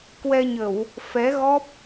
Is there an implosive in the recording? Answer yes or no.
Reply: no